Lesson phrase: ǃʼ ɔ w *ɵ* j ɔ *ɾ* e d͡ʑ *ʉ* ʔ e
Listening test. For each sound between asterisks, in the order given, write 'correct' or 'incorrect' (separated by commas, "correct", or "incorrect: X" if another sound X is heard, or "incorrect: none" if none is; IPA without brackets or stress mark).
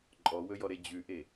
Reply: correct, correct, correct